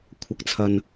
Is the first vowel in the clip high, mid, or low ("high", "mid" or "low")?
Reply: low